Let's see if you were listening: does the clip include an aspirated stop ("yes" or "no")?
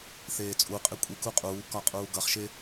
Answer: no